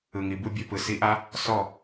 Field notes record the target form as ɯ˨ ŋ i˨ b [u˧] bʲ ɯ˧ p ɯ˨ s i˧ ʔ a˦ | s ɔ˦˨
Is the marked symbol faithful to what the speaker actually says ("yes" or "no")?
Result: yes